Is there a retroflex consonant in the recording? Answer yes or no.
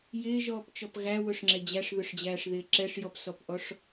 yes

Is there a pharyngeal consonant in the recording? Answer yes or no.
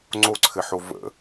yes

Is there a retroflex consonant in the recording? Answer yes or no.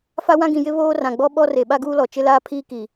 no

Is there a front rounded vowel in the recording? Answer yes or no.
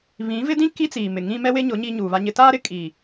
no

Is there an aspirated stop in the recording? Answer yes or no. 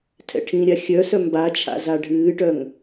yes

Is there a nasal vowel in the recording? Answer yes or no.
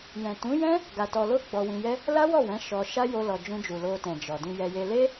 yes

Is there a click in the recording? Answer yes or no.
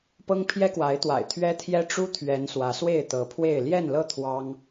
no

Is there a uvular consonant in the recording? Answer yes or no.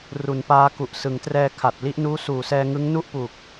no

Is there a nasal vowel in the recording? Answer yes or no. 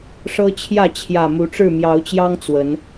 no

